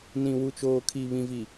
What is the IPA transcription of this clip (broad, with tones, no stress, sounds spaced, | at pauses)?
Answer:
n ĩ˨ w u˨ t͡ʃ oː˨ kʰ iː˨ β ĩ˨ v i˨